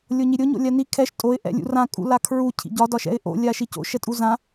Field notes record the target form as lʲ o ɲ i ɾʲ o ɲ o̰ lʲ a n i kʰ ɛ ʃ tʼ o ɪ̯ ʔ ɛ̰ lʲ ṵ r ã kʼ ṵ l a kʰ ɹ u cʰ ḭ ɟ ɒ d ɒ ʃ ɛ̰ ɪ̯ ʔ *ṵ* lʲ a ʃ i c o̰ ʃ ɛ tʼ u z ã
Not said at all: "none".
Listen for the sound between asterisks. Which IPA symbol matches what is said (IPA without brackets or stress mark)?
o̰